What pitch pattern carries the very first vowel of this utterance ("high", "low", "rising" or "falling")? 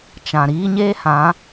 low